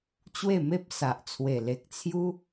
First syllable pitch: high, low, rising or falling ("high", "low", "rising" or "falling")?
falling